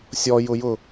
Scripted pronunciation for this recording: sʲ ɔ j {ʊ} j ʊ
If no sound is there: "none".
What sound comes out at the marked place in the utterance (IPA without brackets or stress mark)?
ʊ